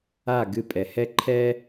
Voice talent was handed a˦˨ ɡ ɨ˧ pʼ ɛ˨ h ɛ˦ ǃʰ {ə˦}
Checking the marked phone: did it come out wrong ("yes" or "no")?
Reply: yes